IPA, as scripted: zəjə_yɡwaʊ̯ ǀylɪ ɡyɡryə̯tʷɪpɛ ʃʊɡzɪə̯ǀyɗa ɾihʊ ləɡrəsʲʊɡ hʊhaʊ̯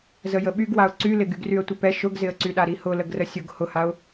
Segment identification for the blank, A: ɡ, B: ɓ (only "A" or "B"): B